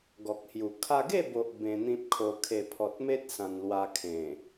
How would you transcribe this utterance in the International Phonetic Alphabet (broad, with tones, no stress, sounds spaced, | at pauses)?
ɡ ɔ˨ k̚ h j u˨˩ kʰ a˧ ɡ e˥˧ b o˨ ʔ b ẽ˧ n̪ ĩ˦ p̚ kʰ o˧ kʰ e˨˩ pʰ ɔ˨ t̚ m e˦ t̚ s ã˧ n l w a˧ kʰ ẽ˨˩